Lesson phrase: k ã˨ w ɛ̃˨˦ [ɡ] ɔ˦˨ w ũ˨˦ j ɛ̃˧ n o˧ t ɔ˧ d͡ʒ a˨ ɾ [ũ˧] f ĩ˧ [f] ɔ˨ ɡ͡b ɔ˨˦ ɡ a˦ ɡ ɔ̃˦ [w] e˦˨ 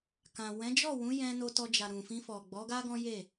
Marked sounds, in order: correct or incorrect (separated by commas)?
incorrect, incorrect, correct, incorrect